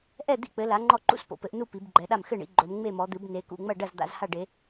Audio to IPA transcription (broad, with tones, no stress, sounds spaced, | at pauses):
ʔ ɛ˥˨ d̪ ḭ˥˨ k͡p ɘ˨˦ l a˨˦ ŋ͡ǃ ɔ˥˨ ǃ ṵ˥˨ s p o̰˨˦ p ɘ˨˦ ʔ n u˥˨ p i˨˦ b ɡ͡ǃ ɛ˨˦ ɗ a˥˨ m x ɘ˥˨ ɳ ḭ˨˦ ɡ͡ǃ o˨˦ m ŋ͡m e˥˨ m ɔ˨˦ d̪ ɨ˨˦ b n e˨˦ k ṵ˥˨ ŋ͡m ɐ˥˨ ɖ ɐ˥˨ z d̪ a̰˨˦ z h a˥˨ ɖ e˨˦